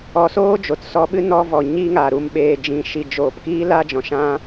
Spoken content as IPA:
ɔ˧ s oː˦ d͡ʒ o˨ t s ɔ˧ ɓ ɨ˦ n ɔ˦ v ɔ˨ ɲ i˦ ŋ a˨ ɾ u˧ m ɓ eː˨ d͡ʒ ĩ˨ ʃ i˨ d͡ʒ oː˨ p k iː˦ l a˦ d͡ʒ ɔ̃˨ ʃ ã˧

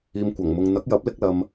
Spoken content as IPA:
iː˨ m kʷ ɐ˨˩ ŋ m ʊ˨ ŋ n̪ ɐ˨˥ k̚ j ɐ˨˥ p̚ l ɪ˧ k̚ l ɐ˨ m

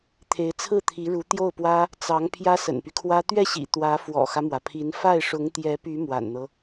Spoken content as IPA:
t̪ʰ e˧˥ ɪ̯ t͡sʰ ɹ̩˥˩ t̪ʰ i˧˥ ɻ u˧˥ t̪ j o˥˩ ʊ̯ p w ä˥ | t͡s ɑ˧˥ ŋ pʰ j ä˥ s ə̰˨˩ n p y˦ kʰ w ä˥ t̪ ɥ ɛ˥˩ ɕ ḭ˨˩ t̪ w ä˧˥ f w ɔ̰˨˩ x ä˦ m w ä˩ pʰ i˧˥ n f a˥˩ ɪ̯ ʂ ʊ˧˥ ŋ t̪ j ɛ˧˥ p y˧˥ m w a̰˨˩ n n̪ ɤ˦

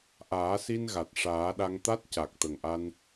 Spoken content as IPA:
ʔ aː˨˩˦ s i˧ n ɣ a˨˩ t̚ ʂ aː˨˩˦ ɗ a˧ ŋ t̪ a˦˥ t̚ c a˨˩ k̚ t̪ ə˨˩ ŋ ʔ a˧ n

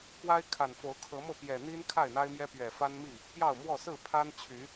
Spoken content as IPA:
k w a˦ ɪ̯ kʰ a˨˩ n f o˨˦ ʊ̯ kʰ ɤ˨˦ m ɤ˥˨ p j ɛ˨˩ n̪ i˦ n kʰ a˥˨ ɪ̯ n̪ a˦ ɪ̯ m j ɛ˦ p ɥ ɛ˨˩ f a˦ n m i˥˨ | p j ɑ˥˨ ʊ̯ m w ɔ˥˨ s ɹ̩˥˨ pʰ a˦ n t͡ɕʰ y˨˦

